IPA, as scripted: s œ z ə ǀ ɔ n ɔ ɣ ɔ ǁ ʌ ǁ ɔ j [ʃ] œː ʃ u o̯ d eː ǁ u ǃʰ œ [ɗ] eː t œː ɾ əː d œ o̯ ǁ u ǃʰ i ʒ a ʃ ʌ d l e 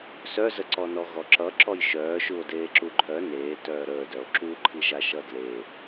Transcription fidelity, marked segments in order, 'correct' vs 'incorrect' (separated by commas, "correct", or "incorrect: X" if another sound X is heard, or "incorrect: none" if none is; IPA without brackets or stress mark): correct, incorrect: n